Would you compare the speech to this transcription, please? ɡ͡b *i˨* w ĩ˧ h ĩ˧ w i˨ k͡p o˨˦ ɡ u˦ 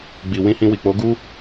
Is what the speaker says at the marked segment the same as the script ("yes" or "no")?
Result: yes